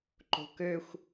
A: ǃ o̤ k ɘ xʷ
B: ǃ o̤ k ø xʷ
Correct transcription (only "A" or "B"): B